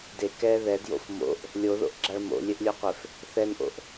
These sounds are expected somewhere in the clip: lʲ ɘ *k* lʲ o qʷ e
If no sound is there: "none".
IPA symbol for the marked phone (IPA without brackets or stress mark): ʔ